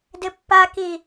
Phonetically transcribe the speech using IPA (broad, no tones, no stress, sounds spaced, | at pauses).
d ɪ pː a k i